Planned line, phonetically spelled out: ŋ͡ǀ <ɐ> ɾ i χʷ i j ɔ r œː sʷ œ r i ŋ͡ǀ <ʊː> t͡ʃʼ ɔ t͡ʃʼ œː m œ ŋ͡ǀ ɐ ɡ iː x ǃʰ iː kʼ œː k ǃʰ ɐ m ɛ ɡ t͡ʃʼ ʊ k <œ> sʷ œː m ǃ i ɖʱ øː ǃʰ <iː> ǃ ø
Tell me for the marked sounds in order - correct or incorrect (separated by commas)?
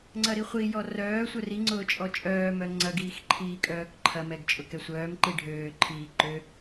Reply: correct, correct, incorrect, correct